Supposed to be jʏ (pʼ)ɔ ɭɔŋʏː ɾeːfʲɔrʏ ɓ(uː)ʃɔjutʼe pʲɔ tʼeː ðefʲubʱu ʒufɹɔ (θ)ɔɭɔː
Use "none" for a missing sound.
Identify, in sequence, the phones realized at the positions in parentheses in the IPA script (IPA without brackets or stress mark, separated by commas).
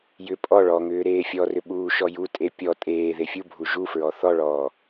pʼ, uː, θ